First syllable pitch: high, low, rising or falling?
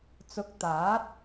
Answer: rising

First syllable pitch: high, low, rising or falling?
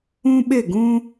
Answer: high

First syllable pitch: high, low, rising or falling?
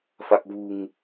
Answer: low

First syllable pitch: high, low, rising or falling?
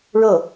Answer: falling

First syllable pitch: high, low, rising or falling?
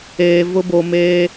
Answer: low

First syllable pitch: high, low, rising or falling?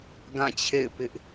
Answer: falling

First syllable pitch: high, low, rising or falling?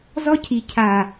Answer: high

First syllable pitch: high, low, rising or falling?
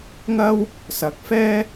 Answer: high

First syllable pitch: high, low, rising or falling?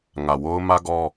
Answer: low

